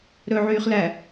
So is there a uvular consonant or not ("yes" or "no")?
yes